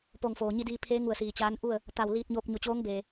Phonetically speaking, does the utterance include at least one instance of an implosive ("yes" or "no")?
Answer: no